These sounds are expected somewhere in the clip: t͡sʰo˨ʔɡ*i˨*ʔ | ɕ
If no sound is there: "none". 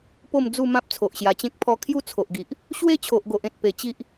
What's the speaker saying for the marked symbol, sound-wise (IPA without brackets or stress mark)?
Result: i˨